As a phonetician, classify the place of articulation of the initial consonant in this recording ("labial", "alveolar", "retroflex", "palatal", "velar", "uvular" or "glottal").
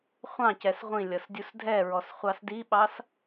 uvular